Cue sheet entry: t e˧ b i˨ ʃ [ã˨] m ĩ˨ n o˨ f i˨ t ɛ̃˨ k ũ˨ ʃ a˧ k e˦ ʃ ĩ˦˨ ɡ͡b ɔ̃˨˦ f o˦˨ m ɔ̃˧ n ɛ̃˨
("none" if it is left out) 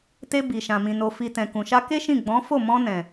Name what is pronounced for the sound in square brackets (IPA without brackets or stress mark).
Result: ã˨